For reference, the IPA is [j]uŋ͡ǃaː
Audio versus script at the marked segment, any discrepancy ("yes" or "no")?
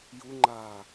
no